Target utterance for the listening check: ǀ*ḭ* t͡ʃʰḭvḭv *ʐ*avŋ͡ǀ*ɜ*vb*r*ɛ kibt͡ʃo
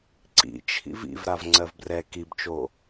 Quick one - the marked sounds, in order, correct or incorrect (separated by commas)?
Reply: correct, incorrect, correct, correct